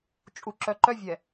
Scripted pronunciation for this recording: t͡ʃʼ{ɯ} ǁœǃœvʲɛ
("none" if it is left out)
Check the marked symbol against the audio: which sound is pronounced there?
u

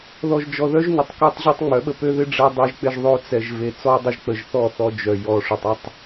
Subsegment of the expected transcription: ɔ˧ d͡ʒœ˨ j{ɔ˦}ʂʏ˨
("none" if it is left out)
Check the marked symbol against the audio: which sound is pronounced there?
ɔ˨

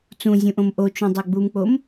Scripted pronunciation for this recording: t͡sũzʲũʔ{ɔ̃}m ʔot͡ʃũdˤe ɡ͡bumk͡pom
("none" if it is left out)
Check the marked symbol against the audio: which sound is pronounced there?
õ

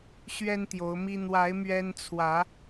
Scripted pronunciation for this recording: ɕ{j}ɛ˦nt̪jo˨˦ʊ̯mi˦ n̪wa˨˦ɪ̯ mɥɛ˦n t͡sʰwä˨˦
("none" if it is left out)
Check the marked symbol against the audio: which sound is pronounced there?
ɥ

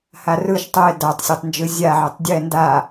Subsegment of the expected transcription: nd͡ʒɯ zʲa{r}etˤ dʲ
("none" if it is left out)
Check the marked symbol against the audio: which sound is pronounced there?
ʕ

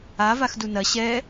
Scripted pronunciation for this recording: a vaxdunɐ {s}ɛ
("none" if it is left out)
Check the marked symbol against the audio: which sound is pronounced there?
ɕ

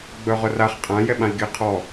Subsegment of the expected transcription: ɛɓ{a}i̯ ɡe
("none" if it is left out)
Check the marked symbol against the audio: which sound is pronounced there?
ã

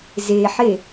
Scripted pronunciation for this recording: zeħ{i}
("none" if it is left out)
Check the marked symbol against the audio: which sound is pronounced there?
e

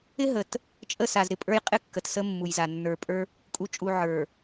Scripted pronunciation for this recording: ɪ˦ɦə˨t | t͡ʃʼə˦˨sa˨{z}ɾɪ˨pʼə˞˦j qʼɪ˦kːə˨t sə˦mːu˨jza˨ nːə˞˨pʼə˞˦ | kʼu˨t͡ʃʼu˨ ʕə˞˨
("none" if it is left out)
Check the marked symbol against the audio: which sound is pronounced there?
z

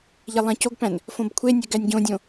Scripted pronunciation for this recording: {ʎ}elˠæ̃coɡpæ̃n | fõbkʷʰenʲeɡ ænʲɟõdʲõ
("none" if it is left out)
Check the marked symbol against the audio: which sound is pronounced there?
ʎ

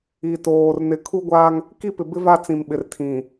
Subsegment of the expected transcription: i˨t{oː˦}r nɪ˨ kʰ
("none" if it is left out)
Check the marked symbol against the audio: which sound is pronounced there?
oː˨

